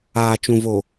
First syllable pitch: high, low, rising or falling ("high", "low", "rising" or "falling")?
low